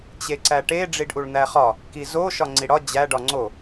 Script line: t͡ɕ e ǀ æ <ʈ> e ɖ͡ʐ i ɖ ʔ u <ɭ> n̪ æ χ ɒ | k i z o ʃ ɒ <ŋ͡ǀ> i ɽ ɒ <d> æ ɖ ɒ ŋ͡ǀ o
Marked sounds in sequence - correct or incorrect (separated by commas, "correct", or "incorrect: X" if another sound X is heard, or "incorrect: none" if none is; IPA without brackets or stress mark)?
correct, correct, correct, incorrect: d͡ʑ